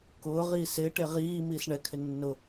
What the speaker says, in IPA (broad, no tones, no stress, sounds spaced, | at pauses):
k ʊː ʁ iː s ɪː ʈ e ʁ iː m iː s ɳ ɛ kʰ ɪ nː ʊ